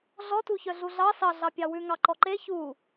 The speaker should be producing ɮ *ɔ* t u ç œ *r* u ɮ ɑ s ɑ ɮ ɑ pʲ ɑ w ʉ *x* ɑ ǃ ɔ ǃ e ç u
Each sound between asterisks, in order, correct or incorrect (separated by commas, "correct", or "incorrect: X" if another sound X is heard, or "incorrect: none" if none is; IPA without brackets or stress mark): correct, incorrect: ɮ, incorrect: ŋ